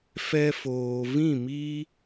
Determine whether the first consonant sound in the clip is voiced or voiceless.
voiceless